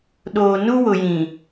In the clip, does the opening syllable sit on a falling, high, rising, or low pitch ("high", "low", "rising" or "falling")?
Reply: low